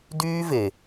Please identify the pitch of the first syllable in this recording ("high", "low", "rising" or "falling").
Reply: high